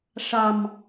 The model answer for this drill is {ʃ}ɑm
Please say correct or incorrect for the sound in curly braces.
incorrect